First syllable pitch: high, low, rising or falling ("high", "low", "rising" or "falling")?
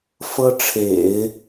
high